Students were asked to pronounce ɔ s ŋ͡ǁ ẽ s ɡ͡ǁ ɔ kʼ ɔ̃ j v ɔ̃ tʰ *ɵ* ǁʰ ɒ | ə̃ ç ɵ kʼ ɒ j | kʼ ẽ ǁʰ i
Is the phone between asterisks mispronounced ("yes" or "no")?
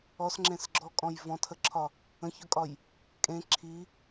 yes